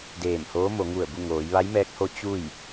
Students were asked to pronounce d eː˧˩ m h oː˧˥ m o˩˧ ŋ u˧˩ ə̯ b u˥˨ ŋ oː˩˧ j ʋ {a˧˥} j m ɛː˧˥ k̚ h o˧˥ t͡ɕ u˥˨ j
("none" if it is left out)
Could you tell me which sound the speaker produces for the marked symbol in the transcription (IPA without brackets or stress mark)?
a˧˥